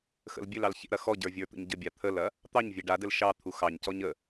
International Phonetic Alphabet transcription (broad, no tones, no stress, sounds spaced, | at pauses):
x ə̰ l bʲ ɘ l ɑ l ç ḛ ɾ ɐ x ɔ ɟ ə˞ vʲ ə˞ t̪ ə̰ ɲ ɟ ə bʲ a t̪ʰ ə l ɐ | t̪ ɑ ɲ vʲ e ɖ a d ɘ l ʃ ɑ t̪ʰ u x ɑ ɲ c ɔ ɲ ə